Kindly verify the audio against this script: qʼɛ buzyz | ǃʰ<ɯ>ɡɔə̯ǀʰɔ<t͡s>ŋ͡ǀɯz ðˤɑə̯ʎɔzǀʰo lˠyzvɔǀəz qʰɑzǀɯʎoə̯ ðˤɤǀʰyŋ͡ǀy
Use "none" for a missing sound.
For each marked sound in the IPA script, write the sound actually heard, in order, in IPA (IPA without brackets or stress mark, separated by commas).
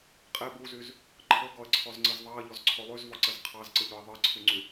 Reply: ɤ, z